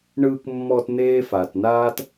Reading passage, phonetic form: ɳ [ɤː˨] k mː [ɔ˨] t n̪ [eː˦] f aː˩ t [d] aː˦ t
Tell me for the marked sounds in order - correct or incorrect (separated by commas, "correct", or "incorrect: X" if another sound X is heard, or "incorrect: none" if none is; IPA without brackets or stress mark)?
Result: incorrect: ɯː˨, correct, correct, incorrect: n